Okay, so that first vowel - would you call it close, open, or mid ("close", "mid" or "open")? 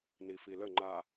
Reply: close